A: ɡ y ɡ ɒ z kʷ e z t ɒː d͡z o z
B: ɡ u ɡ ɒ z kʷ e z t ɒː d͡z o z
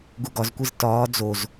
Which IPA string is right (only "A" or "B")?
B